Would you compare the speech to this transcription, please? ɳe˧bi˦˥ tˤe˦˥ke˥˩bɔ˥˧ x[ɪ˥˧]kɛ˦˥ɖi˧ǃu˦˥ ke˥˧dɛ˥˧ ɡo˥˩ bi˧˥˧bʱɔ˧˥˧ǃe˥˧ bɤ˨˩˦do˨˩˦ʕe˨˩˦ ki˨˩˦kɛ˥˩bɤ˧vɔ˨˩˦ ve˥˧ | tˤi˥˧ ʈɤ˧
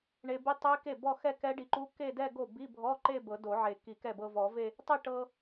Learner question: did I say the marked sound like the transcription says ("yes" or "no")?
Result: no